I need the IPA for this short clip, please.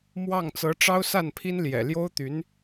m w ɑ˥˩ ŋ t͡s ɤ˧˥ ʈ͡ʂ ɑ˥ ʊ̯ s a˥˩ n pʰ i˥ n l j ɛ̰˨˩ l j o˥ ʊ̯ t̪ y˧˥ n

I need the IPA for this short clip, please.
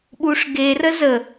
ɓ u ʂ ɡ e r ə z ə

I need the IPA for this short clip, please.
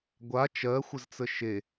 ɡʷ a t͡ʃ ɜ xʷ ə z t͡s ə ʃ e

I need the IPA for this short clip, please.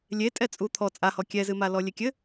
lʲ e tʼ ɛ t͡sʼ u t̪ʰ ɔ t͡sʼ a h ɔ kʲ ɛ z ɨ m a l ɔ lʲ e kʲ ɘ

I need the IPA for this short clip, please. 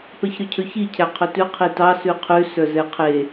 p ɛ ç ɾ ɵ cʰ ɵ ç i cʰ æ qʰ ɵ t ʉ qʰ i t ɑ s ʉ qʰ ʉ s œ z ɛ qʰ e

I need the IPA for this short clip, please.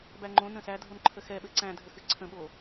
b æ ŋ͡ǃ õ n ə̃ s æ dʱ o n ǃʰ ə x ɛ ɓ ɘ ǀ æ̃ dʱ ə x ɨ ǀʰ ə̃ ɓ o

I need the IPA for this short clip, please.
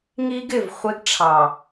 ŋ i˦ ɡ ɪ˨ v χʷ ɪ˦ ɡ ʈ͡ʂʰ ɑ˨

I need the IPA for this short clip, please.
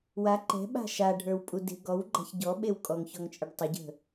w a ǃ ɛ̤ ɓ a̤ ʃ a ɖʱ ə˞ w pʼ u d e̤ ɡ ɔ w ɡ͡ǃ a̤ ç ɟ ɔ ɓ e w kʼ ɔ ŋ ç ɔ ŋ t͡ʃʼ ɘ ɖ tˤ ɘ ɟ ə̤

